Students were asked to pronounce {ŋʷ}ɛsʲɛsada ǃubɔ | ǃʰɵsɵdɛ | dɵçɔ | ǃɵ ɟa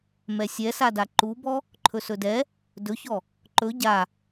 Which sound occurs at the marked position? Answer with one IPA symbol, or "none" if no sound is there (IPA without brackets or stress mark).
m